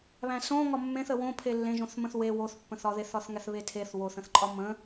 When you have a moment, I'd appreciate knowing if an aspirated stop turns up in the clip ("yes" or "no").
yes